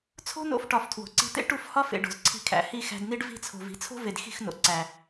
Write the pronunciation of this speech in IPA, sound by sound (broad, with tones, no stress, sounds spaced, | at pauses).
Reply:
t͡sʰ o̤˦ n o̰˧ f ʈ ɒ˨ f tʰ w o̤˨ ǀ i̤˧ t̪ ḛ˦ ʈ u˦˨ f h ɒ˦ f ḛ˨ ɖ o̤˨ z ǀʰ i̤˧ kʰ æ̰˨ h i˦˨ x æ̤˧ d n i˦ ɖ v i̤˧ t͡sʰ o̤˨ v i̤˨˦ t͡sʰ o̤˦ v e˨ d x i̤˦˨ x n o̰˨ ǀ æ˨